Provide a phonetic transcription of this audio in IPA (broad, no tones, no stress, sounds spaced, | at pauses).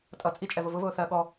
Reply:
tʼ ʌ t͡sʼ i t͡ʃʼ ɛ v ʊ v ʊ β ʊː θ ɜ ɠ ɔ